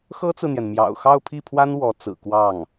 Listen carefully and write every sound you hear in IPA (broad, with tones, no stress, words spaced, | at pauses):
xɤ˥t͡sɹ̩˨n̪jɛ˩n mjɑ̰˨˩ʊ̯xɑ˥˧ʊ̯ pʰi˥˩pʰwa˥n wɔ˧˥t͡sɹ̩˨˩ kwɑ˥˩ŋ